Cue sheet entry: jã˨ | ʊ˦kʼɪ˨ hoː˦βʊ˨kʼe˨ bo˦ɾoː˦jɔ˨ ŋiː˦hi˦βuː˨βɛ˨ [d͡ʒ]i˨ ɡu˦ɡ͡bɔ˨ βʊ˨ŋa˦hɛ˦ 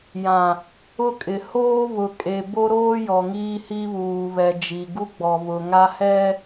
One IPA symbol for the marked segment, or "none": d͡ʒ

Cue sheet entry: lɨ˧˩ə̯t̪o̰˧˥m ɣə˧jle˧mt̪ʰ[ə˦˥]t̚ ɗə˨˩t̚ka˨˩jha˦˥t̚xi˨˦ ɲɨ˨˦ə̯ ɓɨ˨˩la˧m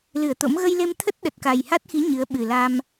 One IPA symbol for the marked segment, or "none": ə˦˥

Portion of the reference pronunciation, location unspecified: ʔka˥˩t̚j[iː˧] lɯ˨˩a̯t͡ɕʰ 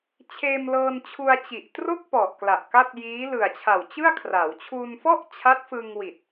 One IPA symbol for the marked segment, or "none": iː˦˥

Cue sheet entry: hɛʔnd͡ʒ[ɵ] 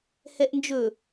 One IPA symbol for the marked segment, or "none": ɵ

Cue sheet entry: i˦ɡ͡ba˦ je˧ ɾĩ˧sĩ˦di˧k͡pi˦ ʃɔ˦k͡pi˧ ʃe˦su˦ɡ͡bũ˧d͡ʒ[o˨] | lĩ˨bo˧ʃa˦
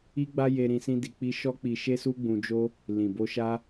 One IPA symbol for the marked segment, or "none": o˦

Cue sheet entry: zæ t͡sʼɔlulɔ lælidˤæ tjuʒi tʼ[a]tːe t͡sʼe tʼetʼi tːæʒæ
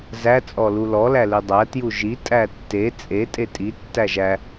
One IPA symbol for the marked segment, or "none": æ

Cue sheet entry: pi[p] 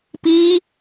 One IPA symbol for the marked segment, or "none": none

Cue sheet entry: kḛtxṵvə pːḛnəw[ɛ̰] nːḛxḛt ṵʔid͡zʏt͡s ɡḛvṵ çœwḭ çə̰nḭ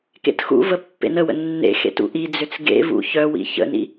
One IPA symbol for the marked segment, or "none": ə̰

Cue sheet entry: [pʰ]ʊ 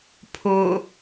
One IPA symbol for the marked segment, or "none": pʰ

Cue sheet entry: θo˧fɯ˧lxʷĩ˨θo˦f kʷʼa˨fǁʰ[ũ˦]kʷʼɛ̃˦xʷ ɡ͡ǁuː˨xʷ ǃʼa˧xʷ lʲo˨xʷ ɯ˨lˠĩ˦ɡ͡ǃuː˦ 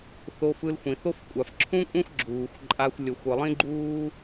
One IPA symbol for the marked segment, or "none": ũ˦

